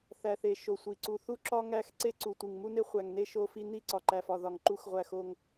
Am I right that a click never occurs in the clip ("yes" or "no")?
no